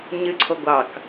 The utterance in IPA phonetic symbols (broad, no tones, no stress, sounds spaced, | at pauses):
ɲ ɨ ǀʰ o ɡʷ ɑ k